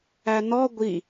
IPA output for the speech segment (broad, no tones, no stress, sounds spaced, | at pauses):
æ n ɔ ɡʷ i